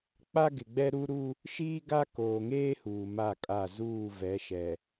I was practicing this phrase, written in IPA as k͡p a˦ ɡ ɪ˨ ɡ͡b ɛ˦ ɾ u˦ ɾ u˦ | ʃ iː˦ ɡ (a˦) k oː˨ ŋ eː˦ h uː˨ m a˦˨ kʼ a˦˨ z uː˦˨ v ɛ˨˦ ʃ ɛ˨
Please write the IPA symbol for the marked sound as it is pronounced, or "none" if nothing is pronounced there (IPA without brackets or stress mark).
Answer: a˦